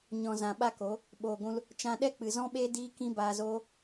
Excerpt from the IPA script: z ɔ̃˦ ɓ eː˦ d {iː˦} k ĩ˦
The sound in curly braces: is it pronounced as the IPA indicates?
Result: yes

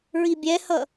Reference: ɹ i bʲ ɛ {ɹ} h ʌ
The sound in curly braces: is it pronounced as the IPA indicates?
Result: no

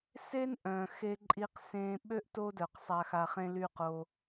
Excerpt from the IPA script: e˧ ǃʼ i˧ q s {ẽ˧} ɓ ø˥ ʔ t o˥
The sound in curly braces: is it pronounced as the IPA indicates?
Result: no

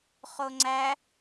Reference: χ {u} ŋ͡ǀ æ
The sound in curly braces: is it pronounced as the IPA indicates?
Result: no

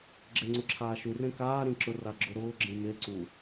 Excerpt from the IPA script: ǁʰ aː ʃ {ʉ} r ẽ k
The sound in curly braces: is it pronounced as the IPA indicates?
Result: yes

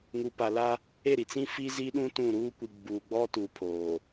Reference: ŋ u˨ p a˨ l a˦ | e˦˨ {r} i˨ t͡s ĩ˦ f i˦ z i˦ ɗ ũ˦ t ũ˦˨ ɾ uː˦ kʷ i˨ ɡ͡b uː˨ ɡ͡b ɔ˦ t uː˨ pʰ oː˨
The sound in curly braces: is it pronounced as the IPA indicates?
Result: no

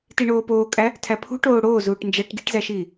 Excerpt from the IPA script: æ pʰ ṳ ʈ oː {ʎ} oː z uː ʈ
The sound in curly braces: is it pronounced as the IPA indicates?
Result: no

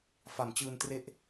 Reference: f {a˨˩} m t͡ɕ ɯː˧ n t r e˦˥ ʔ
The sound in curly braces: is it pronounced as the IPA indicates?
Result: no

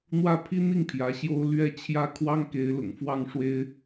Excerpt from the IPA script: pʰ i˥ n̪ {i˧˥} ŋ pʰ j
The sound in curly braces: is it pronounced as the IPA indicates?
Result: no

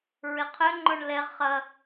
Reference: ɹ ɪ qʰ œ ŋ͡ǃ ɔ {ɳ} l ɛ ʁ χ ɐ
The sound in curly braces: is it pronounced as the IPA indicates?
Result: yes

